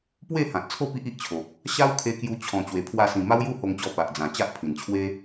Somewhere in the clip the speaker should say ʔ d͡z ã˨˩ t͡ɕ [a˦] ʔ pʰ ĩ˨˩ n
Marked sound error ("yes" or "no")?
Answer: no